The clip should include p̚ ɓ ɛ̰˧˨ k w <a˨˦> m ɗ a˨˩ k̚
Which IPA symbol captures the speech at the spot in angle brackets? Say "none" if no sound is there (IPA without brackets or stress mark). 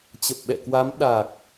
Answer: a˨˦